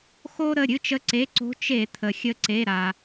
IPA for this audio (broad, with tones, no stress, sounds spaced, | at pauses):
x o˦ ɾ ə˩˧˩ ɾʲ ɨ˦˨ t͡ʃ ə˨˦ ǀ e˩˧˩ ǀ o̤˨˦ t͡ʃ e˧˩˧ t̪ʰ ə˩ xʲ ə˨˦ ǀ e˩˧˩ ɾ a˩